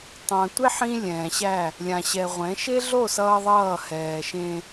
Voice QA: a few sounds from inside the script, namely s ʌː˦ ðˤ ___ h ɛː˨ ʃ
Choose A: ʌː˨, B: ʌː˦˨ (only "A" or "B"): B